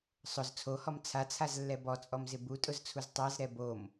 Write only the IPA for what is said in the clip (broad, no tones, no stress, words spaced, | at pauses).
sˤʊz t͡sʰohɔm t͡sʰat͡sʰazlːɛ bɔt͡sʼɔmzɪ butʼʊzt͡sʰuz tˤazɾɛ bom